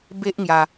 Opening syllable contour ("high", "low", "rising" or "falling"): high